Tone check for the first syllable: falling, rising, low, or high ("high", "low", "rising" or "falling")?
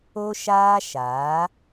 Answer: high